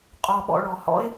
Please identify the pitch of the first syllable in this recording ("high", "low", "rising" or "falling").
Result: low